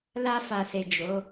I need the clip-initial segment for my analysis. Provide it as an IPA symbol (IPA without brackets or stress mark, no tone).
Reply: l